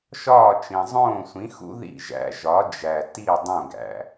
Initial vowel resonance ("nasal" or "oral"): oral